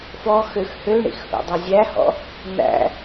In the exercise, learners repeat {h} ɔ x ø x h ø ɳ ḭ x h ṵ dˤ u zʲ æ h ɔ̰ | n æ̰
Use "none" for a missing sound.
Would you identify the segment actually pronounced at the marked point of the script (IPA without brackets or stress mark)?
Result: f